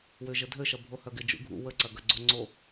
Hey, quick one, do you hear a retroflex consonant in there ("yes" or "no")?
no